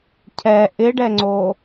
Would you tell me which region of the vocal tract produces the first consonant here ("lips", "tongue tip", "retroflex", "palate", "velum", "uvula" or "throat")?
palate